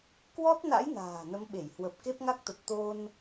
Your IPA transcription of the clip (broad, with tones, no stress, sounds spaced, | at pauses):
k w ɔ˦˥ t̚ n a̰˧˥ j n a̤ː˨˩ n ə˨˦ m ɓ e˧˩ j h w ə˨˩ p̚ k e˦˥ p̚ ŋ a˦˥ k̚ t̪ ə˨˩ t̚ t̪ o˧ n